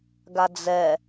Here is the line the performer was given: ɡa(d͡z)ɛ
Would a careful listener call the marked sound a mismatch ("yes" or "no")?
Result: no